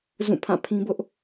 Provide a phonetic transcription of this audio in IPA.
z ũ˦˨ pʰ ã˦˨ pʰ ĩ˦ b ʊ˦ ʔ

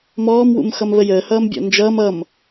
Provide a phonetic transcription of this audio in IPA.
m ɔː m w ṵ m x ʌ m β ə j əː h ʌː m bʲ ɔ̰ n d͡ʒ ʌː m ʌ m

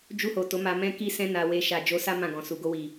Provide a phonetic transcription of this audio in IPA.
d͡ʒ u˧ h o˨ t o˨˦ m a˧ m ɛ̃˧ k i˧ s ɛ̃˧ n a˨ w e˨ ʃ a˨ d͡ʒ o˧ s a˦ m ã˦˨ ɡ ɔ̃˨ s u˨ ɡ o˧ w i˨

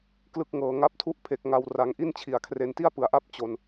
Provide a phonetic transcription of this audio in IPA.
k l ɯ˨˩ k̚ ŋ ɤː˩˦ ŋ a˦˥ p̚ tʰ u˥˩ ʔ pʰ e˨˩ k̚ ŋ a˧ w r a˨˩ ŋ ʔ i˥˩ n t͡ɕʰ i˩˦ a̯ kʰ r e˧ n t i˥˩ a̯ p ɯ˩˦ a̯ ʔ a˥˩ p̚ t͡ɕ o˧ n

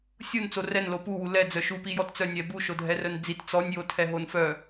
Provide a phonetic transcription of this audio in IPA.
sʲ u n t͡s o r ɛ n l o p u w u l ɛ d͡z œ ʃ u p i j ɔ t t͡s œ nʲ ɛ b u ʃ o dʱ ɛ r œ n d͡z i t t͡s ɔ nʲ j o tʰ ɛ ɦ o n f œ

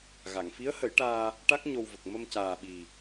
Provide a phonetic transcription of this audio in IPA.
ɣ a˨˩˨ ŋ f i˧˥ ə̯ h ə˨˩˦ j ʈ aː˧ | ʈ a˦˥ k̚ ɲ o˧ w v ə˨˩ k̚ m ə˧ m c aː˨˩ ɓ i˨˩

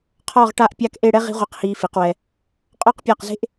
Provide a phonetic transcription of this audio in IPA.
qʰ ɔ˥˧ ʁ ʈ a˥˧ ʔ pʲ a˥˧ k ʔ e˥˧ ɽ ɛ˥ ʁ i̤˥ ʁʷ e˧ q h iː˧ f i˩˧ q w ɛ˧ | qʼ ɔ˥˧ q pʲ a˧˩ q z e̤˥ ʔ

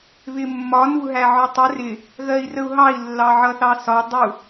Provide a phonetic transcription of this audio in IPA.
β ɪ mː ɒ n u ɦ æ ʕ ɒ tˤ ə r ɪ | ɣ ɜ i̯ r ə u̯ ɦ ɑ i̯ lː ɑ ʕ ʌ θ ɑ s ɒ dˤ u

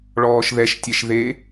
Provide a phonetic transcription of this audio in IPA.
ɭ ɔː ʃ ð ɛ ʃ tʲ ɛ ʃ ð e

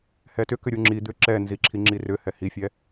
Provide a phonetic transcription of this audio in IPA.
h ɛ t ʏ k ʏ ɾʲ u ŋ͡ǁ i d̪ ʏ ǁ ɛ n z i ǁʰ i ŋ͡ǁ i r ʏ h ɛ h i fʲ ɛ

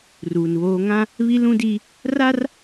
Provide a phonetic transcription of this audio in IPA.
r uː˨ n β oː˦ ŋ ã˦ | β i˦ l ũ˦ d i˦ | r a˦ r

